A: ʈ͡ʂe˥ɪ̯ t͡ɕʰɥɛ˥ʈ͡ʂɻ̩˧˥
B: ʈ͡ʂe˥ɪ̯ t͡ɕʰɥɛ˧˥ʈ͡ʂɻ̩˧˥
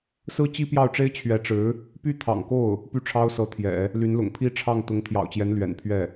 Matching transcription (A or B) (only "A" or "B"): B